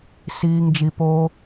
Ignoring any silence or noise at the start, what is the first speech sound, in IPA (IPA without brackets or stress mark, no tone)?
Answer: s